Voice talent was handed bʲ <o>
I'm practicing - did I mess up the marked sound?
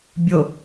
no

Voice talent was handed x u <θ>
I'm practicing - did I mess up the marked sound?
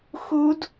yes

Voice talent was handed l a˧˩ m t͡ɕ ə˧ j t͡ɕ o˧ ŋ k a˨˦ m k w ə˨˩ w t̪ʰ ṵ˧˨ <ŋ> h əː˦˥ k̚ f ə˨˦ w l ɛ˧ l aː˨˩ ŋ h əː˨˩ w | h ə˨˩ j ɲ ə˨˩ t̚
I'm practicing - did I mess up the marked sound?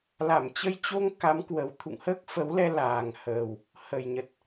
no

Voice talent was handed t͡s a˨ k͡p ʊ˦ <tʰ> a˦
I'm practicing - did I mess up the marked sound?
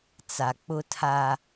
no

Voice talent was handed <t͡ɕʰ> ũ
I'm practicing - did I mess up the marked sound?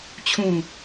no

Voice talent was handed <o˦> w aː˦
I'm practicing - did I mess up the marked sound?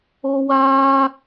no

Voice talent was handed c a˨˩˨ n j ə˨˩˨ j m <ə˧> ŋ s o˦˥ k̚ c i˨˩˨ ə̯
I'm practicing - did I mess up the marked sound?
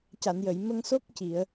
no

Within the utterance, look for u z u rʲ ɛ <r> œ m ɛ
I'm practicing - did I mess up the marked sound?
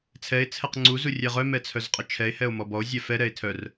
yes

